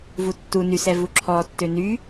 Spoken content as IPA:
v u tː u n y s ɛ v u ǁʰ ɔ tː ø n y

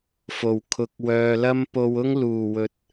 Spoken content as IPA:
f o˨˩ w kʰ ʊ˨ k̚ w œː˨ l ɐ˥ m p o˧ w ʊ˥ ŋ l uː˨˩ w ɵ˨˥ t̚

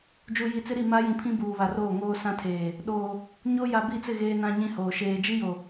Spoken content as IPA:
d͡ʒ u˨ j i˨ t͡s ɪ˦ ɾ i˦˨ m a˦ j ĩ˨ pʰ ĩ˦ b uː˨ β a˨ r oː˦˨ ŋ oː˦ s ã˦ tʰ eː˨ | ɗ oː˨ | ɲ o˦ j a˨ b i˦˨ t͡s ɪ˦˨ ɣ eː˦ n ã˦ ɲ ĩ˦ h oː˨ ʃ eː˨ d͡ʒ i˦ j o˨

